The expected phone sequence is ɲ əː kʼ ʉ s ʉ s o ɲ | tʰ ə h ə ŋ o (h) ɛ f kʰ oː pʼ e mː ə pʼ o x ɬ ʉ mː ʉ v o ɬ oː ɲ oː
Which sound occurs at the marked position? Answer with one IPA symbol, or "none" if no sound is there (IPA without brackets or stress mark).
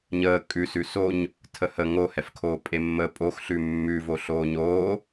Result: h